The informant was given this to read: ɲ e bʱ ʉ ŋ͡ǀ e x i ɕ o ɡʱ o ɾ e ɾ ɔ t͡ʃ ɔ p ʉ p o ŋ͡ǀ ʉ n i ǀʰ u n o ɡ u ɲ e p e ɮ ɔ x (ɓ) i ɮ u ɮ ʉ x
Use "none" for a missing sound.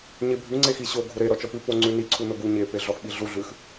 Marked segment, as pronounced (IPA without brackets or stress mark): ɓ